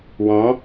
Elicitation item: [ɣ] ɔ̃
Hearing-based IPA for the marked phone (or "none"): w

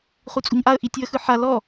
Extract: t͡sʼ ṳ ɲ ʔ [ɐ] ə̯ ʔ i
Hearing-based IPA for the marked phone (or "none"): a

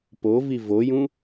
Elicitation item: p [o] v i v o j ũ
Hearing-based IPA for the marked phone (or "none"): o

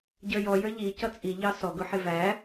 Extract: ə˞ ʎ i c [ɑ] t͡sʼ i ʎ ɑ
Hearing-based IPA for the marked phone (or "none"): ʌ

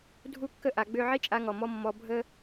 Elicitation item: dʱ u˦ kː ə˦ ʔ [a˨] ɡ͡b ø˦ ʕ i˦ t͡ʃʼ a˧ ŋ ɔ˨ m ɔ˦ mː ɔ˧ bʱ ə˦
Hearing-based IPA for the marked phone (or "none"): a˧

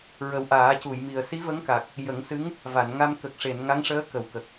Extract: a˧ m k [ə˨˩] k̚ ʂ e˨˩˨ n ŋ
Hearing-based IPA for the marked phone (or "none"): ə˨˩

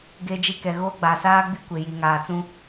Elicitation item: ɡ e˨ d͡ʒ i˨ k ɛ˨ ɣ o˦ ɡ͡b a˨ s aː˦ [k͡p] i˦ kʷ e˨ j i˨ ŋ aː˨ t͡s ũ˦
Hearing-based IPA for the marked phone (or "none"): ɡ͡b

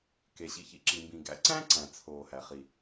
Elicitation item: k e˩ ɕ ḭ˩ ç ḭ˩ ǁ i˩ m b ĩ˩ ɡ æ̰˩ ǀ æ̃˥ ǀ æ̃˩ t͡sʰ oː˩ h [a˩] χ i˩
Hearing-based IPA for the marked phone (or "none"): æ˩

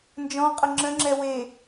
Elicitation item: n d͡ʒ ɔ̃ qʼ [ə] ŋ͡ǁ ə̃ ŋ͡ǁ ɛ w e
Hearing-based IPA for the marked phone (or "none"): ə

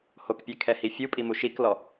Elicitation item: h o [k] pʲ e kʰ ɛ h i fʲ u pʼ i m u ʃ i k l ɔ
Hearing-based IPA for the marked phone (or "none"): k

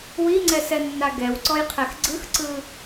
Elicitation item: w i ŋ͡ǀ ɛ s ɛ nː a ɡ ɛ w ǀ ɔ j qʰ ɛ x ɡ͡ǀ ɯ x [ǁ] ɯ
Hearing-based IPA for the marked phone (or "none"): ǀ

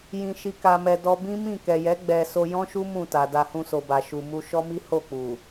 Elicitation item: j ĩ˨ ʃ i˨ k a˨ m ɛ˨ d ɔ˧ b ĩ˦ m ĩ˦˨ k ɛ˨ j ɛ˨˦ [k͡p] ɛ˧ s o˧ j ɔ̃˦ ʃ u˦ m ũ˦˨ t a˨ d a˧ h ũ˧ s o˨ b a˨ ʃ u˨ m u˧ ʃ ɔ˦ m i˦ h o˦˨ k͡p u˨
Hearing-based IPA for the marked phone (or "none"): ɡ͡b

